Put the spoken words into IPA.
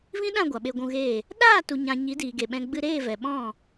v ĩ˦ ɗ ã˦˨ ɡʷ a˨ ɓ e˧ ɡʷ ũ˧ ɣ eː˦˨ | ɗ aː˦˨ t u˨ ɲ ã˨ ɲ i˨˦ d iː˨ ɡ e˨ ɓ ɛ̃˧ ɡ͡b ɨ˧ ɾ eː˦˨ v ɛ˨ ɓ ɔ̃˦˨

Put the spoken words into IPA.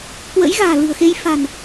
k w ə̰˧˥ j ɣ a̤ː˨˩ l ɨ̤˨˩ ə̯ x e˧ j f a̤˨˩ n

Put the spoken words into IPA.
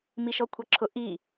m i ʃ ɔ kʷʰ ɑ ǁʰ ʊ ʔ i

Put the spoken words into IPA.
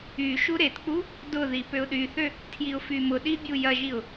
y ʃ u ɾ e t k͡p u | d ʊ ð i p ø ʊ̯ ɗ y θ ø | tʰ j i ʊ̯ f y m ʊ ɗ i bʲ u j ɐ ʒ i ʊ̯

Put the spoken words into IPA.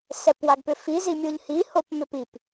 s ɛ p w a ɡ p ʏ f i z i mʲ o ʎ h i h o p m ʏ p i p

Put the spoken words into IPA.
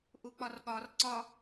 ʔ u k͡p ɒ r ɠ ɒ r ǀ ɒ

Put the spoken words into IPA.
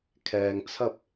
kʰ ɛː˨ ŋ t͡sʰ ɐ˥ p̚

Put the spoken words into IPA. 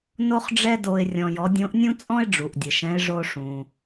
n o˥ χ ɖ͡ʐ ɛ˥ d o˧ ɪ̯ rʲ ɔ̃˧ j ɔ˧˥ dʲ õ˧˥ ʔ nʲ ũ˥ t͡sʼ ɔ̃˥ ɪ̯ ɖ͡ʐ u˩ ʔ dʲ ə˩ ʃ ɛ̃˧˥ ɪ̯ ʐ o˧ ʂ ũ˩

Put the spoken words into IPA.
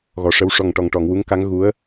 ɣ ɔ˨˩ ʂ ə˧ w ʂ ɔ˨˩ ŋ ʈ ɔ˨˩ ŋ ʈ ɔ˨˩˨ ŋ w u˧˥ ŋ k a˧˥ ŋ ɣ u˧˥ ə̯

